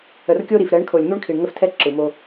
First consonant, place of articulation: alveolar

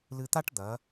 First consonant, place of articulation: alveolar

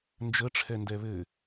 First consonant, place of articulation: alveolar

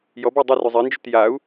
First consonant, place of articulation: palatal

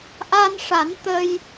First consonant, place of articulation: glottal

